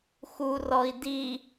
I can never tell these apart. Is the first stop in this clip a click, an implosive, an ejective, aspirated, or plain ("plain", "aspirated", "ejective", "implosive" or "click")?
plain